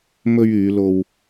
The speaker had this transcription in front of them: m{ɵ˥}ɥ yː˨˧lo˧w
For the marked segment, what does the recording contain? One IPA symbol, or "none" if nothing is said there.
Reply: ɵ˧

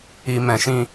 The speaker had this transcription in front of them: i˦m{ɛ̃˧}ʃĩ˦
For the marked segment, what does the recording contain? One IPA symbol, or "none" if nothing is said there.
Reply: ɛ̃˧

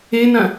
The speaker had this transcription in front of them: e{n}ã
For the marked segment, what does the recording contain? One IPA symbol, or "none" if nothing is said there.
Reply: n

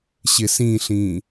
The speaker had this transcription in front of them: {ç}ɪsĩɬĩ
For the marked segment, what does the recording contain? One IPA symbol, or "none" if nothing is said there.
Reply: ɕ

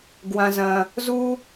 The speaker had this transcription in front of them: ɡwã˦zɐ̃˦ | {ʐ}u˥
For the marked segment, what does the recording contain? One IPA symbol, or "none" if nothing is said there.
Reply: z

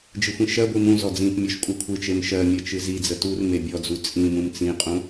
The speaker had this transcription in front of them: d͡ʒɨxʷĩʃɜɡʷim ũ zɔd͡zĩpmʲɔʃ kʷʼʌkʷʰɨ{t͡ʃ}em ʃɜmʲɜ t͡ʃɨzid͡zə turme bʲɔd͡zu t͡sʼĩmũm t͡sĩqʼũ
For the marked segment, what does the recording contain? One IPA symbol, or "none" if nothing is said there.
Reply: t͡ʃ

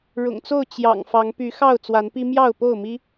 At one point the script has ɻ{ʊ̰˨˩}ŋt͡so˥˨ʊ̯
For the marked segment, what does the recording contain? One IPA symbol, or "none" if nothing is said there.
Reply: ʊ̰˨˩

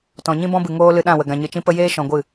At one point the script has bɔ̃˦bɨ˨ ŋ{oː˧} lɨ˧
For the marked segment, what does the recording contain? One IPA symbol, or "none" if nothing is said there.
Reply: oː˦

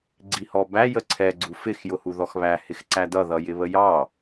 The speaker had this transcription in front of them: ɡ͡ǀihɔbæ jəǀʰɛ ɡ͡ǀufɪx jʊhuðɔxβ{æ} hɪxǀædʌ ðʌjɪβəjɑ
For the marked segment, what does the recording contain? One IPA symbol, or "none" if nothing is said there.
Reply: æ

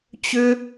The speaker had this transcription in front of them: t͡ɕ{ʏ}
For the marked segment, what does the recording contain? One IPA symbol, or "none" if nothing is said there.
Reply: ʏ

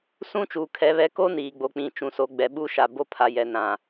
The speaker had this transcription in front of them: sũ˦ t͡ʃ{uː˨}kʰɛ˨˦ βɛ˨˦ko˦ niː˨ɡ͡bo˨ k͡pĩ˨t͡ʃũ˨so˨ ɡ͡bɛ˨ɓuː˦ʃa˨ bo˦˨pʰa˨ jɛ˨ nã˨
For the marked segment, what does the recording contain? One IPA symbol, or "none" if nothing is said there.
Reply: uː˨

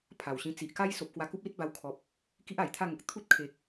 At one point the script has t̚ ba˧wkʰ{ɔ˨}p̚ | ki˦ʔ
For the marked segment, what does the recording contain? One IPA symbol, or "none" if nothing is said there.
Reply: ɔ˨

